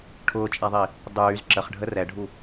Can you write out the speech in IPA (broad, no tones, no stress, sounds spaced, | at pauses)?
ʈʰ ʊː t͡ʃʼ a ðˤ i | dˤ yː z ǁ ə χ ɖʱ ə r ɛ ɖʱ u